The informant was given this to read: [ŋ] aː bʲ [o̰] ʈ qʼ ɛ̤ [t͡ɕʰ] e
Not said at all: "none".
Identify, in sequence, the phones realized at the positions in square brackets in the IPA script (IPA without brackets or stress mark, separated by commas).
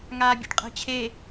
ŋ, o̰, t͡ɕʰ